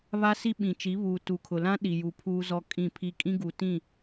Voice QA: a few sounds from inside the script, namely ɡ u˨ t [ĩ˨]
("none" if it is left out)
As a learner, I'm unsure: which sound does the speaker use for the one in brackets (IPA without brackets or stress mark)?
ĩ˦˨